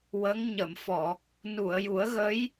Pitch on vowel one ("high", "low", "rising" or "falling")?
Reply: rising